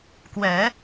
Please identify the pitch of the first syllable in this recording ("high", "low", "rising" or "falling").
rising